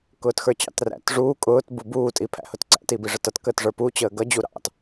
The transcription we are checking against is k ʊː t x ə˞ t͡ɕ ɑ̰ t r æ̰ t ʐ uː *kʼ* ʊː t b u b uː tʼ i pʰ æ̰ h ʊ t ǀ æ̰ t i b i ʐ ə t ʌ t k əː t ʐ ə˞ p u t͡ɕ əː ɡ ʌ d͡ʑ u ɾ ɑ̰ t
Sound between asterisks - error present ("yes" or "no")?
no